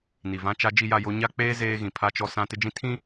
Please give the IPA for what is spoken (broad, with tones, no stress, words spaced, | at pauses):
ni˨vã˦t͡ʃa˦ d͡ʒi˨ja˨ jo˦ ɲa˦k͡peː˦ zeː˦ɣĩ˨pʰa˦t͡ʃɔ˦ sã˦ tɪ˦d͡ʒĩ˦ tʰĩ˦